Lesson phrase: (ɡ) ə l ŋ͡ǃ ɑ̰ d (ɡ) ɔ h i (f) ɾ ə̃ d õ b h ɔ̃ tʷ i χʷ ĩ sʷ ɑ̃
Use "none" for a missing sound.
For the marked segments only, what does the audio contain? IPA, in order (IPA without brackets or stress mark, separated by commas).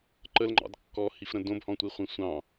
ǃ, kː, f